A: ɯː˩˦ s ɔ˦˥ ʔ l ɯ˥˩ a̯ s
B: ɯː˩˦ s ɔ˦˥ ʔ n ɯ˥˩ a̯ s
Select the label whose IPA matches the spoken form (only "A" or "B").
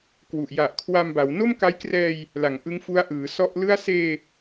A